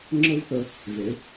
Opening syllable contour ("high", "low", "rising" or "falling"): high